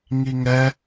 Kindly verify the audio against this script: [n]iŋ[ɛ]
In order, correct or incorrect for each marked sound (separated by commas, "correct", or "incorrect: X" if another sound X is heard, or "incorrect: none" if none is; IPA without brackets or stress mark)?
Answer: incorrect: ŋ, correct